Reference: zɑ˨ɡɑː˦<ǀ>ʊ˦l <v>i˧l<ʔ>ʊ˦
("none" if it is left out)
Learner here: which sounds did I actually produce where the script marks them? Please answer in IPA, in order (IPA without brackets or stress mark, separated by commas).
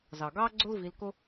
ɡ͡ǀ, v, k